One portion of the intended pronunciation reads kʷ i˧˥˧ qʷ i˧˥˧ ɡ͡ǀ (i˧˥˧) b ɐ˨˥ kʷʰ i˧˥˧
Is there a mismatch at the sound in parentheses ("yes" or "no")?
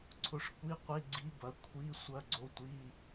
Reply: yes